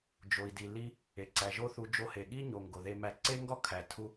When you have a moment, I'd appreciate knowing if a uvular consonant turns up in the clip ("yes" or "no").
no